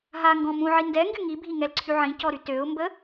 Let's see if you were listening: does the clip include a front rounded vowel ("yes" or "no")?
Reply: yes